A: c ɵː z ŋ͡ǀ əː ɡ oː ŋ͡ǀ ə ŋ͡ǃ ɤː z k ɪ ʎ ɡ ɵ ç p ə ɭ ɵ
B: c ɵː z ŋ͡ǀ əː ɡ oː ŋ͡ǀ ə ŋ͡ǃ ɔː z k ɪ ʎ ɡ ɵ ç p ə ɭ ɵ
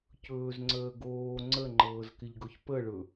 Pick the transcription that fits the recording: A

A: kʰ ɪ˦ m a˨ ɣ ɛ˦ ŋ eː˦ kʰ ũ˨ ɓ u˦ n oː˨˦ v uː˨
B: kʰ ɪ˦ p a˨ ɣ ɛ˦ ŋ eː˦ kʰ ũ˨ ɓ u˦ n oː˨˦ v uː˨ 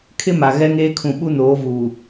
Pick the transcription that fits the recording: A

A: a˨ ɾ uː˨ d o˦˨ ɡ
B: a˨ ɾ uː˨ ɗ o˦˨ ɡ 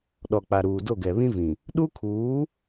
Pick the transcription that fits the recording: A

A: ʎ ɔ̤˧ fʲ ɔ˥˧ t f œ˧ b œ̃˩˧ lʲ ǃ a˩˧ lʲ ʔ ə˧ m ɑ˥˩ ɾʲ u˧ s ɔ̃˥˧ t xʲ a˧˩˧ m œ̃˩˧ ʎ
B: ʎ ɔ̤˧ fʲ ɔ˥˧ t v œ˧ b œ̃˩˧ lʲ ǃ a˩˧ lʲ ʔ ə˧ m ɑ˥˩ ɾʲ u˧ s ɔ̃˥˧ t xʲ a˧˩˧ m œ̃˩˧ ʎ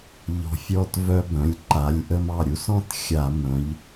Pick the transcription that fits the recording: B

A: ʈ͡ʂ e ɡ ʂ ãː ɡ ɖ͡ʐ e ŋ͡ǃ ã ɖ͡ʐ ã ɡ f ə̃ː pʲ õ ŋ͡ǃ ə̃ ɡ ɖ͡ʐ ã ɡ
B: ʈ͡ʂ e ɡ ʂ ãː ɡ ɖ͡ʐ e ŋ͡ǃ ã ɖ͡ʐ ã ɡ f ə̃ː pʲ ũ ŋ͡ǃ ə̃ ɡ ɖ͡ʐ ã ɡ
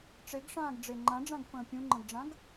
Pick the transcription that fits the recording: B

